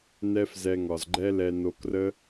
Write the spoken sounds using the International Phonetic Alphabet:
nɛ˦f zɛ˧ŋɒ˨z ɡ͡ǃɛ˦ lɛ˧no˧krə˦

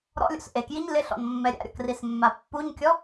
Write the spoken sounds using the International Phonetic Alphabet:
ɾɔ̰lʲo̰s ʔekjiɲ lɪɬɔ̰nmːɛ ɾʲa̰ɾʲɔ̰krismːa pːuɲkʲɔ

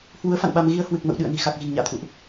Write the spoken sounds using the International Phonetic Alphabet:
hwu˨˦ə̯ fa̰˧˨nɓa˧m ɣi˧ə̯ hwɨ˨˩k̚mə̰˧˨w ɗɨ̰˧˨ə̯ni̤˨˩xa˨˩k̚ ɣi̤˨˩ŋɲa̰ː˧˨t̪ʰṵ˧˨ʔ

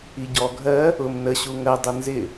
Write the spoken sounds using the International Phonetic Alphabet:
iɟɔ ɡʱɜ | ʊm nə ɕuŋɜ dˤʊnzɪ

